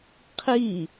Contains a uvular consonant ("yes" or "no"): yes